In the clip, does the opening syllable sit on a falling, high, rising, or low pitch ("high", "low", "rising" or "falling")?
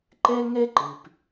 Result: high